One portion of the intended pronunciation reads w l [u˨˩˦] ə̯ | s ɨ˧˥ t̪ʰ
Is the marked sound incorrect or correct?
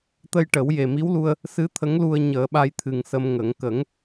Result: incorrect: u˧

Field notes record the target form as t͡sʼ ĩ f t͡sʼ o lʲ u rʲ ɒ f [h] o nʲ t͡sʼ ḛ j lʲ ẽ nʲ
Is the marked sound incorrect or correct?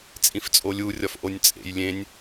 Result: incorrect: ʔ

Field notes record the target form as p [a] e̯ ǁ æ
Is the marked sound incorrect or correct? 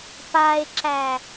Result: correct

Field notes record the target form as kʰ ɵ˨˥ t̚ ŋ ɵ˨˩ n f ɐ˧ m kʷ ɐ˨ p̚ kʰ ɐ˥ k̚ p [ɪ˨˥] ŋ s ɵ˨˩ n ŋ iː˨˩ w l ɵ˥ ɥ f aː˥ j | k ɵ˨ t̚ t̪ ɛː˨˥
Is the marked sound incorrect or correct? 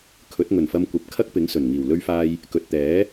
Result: correct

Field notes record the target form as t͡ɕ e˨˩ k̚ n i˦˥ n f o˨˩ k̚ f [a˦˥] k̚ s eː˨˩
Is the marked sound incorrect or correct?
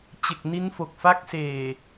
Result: correct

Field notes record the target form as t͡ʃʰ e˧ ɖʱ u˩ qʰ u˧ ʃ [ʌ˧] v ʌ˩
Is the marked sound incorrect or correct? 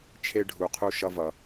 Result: correct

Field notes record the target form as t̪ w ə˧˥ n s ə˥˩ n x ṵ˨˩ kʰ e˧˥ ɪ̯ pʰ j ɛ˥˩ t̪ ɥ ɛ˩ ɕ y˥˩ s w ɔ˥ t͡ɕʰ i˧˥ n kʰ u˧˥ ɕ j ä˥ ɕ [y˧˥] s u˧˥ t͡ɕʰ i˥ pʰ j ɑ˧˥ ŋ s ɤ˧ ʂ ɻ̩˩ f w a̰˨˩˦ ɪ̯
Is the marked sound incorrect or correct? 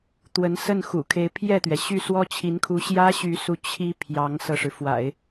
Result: correct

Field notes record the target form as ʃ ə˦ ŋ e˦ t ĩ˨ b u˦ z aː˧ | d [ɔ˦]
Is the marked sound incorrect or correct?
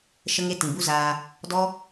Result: correct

